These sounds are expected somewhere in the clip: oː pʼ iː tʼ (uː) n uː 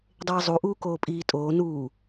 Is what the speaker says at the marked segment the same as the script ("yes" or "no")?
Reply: no